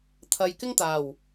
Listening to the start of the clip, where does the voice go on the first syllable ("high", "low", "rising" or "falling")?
low